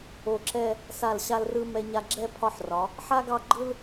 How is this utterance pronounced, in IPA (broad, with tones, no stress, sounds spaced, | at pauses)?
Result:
o˧˩ ǁ ɛ˥˧ | s a˧˩ l ɕ a˧ l r ɯ˧ m ɛ˧ ɲ a˧ ɡ͡ǁ ɛ˥˧ pʰ ɒ˥˧ ħ r ɒ˩˧ | ħ a˥ ɡ ɑ˥˧ ɡ͡ǃ ɯ˥ l